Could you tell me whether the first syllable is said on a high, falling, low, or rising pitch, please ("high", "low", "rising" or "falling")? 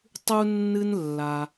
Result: high